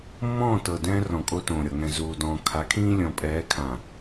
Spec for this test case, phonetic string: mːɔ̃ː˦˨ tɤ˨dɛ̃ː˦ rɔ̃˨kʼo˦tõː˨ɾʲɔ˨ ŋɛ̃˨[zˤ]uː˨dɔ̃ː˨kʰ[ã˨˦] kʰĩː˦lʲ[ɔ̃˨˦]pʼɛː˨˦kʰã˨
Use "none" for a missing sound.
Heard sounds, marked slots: z, a˨˦, ɔ̃˨

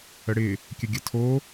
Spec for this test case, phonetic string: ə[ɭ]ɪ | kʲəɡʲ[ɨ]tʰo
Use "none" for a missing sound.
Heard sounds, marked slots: ɽ, ə

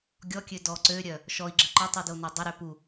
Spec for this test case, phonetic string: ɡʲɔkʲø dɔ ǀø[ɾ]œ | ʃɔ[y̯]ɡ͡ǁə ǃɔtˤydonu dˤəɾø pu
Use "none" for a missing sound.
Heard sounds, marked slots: ɾʲ, i̯

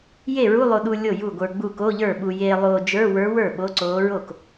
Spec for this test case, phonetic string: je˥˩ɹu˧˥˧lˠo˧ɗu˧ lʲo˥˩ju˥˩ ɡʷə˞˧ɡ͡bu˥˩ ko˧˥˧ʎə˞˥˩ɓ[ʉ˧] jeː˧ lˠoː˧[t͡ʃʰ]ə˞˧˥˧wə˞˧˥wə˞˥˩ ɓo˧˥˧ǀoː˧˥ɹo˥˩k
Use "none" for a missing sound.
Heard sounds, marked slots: u˧, d͡ʒ

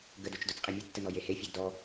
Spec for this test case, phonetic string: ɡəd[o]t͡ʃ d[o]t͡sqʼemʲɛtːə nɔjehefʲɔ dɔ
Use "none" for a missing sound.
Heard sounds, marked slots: o, o

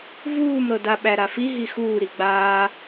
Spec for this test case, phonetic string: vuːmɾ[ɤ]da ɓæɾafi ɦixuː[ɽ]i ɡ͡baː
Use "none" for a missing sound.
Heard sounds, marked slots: ɤ, ɾ

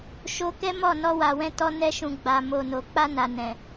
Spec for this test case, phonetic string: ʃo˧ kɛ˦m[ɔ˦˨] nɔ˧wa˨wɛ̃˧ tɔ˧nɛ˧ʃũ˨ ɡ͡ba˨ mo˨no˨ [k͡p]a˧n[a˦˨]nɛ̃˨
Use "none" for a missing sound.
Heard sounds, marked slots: ɔ˦˨, k͡p, a˨

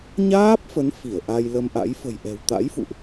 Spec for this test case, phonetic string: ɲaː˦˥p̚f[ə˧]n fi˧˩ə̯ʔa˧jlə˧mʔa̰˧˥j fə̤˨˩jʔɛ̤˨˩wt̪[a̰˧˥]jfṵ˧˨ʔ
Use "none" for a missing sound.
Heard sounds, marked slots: ə˨˦, a̰˧˥

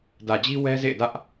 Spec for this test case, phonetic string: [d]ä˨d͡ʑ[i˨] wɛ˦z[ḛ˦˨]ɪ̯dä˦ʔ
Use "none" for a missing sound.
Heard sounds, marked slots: d, i˦, ḛ˦˨

